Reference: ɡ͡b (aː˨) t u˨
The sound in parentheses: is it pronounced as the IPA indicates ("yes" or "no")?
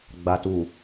no